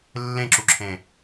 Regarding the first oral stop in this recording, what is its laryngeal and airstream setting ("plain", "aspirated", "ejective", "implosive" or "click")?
click